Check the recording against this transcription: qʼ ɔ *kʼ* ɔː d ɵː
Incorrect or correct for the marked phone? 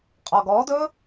incorrect: ɡ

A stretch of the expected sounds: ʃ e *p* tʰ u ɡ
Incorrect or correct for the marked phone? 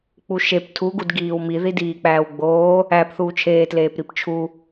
correct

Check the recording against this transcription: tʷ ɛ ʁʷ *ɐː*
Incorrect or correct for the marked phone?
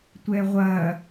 correct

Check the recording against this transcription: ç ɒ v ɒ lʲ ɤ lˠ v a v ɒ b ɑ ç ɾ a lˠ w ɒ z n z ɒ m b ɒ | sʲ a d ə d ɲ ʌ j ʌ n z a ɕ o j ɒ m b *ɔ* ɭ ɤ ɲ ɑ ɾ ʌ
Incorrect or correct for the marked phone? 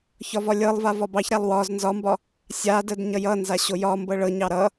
incorrect: ɤ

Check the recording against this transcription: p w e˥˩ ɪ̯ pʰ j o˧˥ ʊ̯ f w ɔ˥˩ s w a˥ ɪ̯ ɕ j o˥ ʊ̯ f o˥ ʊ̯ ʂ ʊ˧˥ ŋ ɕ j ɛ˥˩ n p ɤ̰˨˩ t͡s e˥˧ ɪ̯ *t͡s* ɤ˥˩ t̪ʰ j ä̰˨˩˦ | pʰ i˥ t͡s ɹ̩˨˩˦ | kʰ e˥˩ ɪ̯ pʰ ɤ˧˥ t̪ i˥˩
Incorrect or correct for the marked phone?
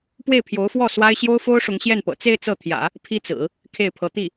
correct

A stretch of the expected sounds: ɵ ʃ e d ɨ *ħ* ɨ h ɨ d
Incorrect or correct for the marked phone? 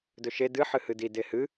correct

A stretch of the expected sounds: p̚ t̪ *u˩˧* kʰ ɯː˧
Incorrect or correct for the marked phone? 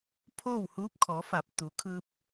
correct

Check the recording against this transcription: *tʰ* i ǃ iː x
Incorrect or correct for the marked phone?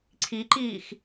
incorrect: ǀʰ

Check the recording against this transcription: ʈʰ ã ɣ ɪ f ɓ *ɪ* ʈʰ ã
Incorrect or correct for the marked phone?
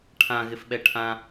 incorrect: ɛ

